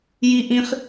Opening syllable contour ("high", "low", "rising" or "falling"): high